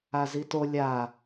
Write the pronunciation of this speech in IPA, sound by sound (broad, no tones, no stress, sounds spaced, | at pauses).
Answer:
a z i t o lʲ a